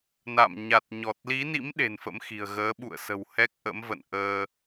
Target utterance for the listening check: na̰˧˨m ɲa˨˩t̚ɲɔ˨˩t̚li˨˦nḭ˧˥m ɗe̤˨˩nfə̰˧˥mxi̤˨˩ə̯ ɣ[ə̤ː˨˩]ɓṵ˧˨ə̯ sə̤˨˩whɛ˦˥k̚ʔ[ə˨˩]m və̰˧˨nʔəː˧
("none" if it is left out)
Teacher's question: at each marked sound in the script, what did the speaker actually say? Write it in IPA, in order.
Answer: əː˨˦, ə̰˧˥

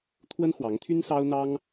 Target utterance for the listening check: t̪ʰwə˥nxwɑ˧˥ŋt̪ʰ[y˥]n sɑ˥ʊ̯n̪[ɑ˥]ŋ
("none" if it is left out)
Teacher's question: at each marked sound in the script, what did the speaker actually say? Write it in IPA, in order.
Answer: y˥, ɑ˥

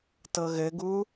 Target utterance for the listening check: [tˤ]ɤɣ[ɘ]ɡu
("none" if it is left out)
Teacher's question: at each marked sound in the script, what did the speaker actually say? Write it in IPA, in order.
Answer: t, ɘ

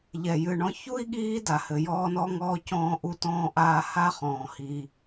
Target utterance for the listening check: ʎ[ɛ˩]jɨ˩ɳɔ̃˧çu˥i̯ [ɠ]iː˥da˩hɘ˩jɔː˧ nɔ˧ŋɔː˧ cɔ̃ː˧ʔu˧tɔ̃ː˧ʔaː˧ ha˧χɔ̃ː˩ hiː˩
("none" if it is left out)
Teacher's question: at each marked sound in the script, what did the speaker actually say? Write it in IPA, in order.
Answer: ɛ˩, ɠ

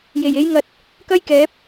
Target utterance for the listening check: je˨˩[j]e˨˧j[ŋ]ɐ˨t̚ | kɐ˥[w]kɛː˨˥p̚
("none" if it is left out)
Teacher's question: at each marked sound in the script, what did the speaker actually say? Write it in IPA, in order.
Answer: j, ŋ, j

